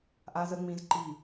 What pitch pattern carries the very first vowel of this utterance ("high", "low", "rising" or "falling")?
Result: high